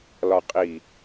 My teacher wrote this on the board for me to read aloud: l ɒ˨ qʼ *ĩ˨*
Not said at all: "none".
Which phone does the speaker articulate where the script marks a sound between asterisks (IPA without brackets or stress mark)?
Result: i˨